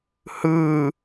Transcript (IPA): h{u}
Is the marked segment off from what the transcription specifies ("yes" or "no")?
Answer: yes